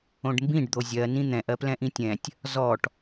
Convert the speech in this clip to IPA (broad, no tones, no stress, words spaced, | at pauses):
õɖmbĩɖ d̪ozʲɜ nĩn̪ɛ̃ʔ ɜplɛ̃ʔĩtʲɛ̃tʲ | zɔʈ